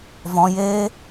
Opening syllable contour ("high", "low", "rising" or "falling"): high